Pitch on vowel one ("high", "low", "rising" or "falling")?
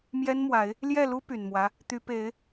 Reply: high